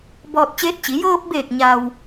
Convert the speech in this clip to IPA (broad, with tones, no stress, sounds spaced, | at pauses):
b ɔː˧ t̚ t͡ɕ eː˧˥ t̚ t͡ɕ i˩˧ j ɤː˧ p̚ b eː˧˩ k̚ ɲ a˩ w